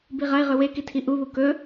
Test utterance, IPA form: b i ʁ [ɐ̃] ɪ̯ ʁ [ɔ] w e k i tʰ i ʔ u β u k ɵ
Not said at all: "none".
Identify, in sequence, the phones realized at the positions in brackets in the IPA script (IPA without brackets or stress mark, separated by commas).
ɐ, ɵ